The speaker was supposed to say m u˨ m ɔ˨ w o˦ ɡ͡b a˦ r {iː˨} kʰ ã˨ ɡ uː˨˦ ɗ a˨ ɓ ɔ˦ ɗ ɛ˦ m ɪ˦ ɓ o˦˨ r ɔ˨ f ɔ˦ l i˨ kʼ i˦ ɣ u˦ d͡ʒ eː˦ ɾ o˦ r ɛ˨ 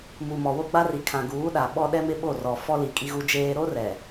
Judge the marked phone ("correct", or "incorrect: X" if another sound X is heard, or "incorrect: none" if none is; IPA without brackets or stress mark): incorrect: i˨